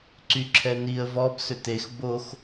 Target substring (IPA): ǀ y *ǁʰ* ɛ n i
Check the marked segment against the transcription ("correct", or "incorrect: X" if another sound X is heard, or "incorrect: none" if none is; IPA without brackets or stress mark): correct